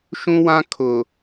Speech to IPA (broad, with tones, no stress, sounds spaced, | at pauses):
ʃ ũ˦ w ã˦ kʰ ʊ˨